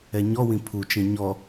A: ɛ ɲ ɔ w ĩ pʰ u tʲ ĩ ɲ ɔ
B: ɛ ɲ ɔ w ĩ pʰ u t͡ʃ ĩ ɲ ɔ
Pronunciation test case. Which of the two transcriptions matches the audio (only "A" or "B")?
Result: B